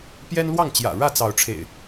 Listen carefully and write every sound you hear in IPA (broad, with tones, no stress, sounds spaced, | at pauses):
p j ɛ˦ n l w ɑ˥˨ ŋ t͡ɕ j ä̰˨˩ ɻ ä˥˨ t͡s ɑ˨˦ ʊ̯ ʈ͡ʂʰ ḛ˨˩ ɪ̯